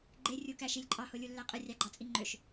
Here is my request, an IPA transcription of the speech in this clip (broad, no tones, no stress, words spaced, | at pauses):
ɡ͡ǃerʲukæʃilʲ ǃʼɑholʲulːæ qʼɯrʲɑɡ͡ǃɑt͡sʼi ŋ͡ǃøʃ